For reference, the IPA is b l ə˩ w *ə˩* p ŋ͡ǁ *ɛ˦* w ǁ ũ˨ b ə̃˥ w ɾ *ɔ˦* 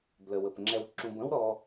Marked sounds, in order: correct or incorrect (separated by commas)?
correct, incorrect, correct